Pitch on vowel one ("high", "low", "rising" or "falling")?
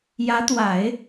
rising